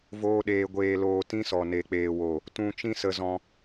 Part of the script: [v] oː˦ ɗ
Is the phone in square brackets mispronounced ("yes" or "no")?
no